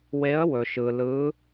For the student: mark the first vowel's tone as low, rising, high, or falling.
rising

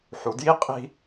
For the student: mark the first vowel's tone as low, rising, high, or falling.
low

